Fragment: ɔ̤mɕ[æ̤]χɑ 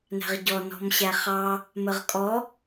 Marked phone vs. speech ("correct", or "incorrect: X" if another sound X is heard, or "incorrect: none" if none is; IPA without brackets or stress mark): incorrect: æ